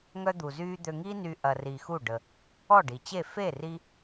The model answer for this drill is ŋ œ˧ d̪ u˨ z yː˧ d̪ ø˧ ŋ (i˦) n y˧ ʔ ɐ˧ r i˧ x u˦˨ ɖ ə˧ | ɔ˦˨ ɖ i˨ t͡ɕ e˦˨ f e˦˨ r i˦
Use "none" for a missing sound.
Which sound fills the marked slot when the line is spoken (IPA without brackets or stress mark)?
i˦